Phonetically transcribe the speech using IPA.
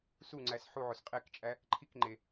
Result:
suŋ͡ǀæs ħuʕos qʼekt͡ʃʼæ | ǃʰikŋ͡ǃe

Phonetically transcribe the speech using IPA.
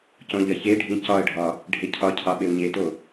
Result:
cõʎɐçeɖʱĩ cɒə̯ɖʱɒ | ɖʱecʰɒcʰɑ ɓewɲeto

